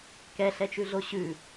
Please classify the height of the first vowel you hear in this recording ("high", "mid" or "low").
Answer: mid